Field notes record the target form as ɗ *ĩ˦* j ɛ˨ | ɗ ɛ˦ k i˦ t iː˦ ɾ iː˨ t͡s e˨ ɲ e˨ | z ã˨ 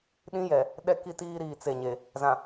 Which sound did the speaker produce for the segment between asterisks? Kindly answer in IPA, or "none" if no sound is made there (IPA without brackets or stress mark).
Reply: ĩ˦